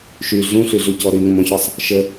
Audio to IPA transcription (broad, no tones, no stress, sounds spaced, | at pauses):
ʃ y ɮ ũ ɬ y ɮ u c ɔ ɾ y ŋ ə̃ m ɔ̃ ç ɔ sˤ | ʃ ə